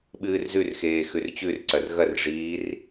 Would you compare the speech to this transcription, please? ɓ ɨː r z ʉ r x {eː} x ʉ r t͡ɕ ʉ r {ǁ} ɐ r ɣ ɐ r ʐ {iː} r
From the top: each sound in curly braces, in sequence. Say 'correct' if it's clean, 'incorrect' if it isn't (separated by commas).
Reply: correct, incorrect, correct